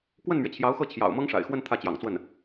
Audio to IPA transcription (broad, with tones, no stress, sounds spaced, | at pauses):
k w ə˥˩ n m ɥ ɛ˩ t͡ɕʰ j ɑ˧˥ ʊ̯ x ɤ˥˩ t͡ɕʰ j ɑ̰˨˩ ʊ̯ m ɤ˥ ŋ ʂ a̰˨˩ ɪ̯ x w ə˥˧ n t̪ʰ ä˥˩ t͡ɕ j ɑ̰˨˩ ŋ t͡s w ə˥˩ n